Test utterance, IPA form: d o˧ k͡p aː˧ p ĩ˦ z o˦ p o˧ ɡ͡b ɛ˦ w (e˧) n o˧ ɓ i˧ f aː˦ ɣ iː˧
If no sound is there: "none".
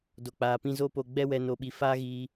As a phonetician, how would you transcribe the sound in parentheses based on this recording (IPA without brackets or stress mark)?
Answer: ɛ˧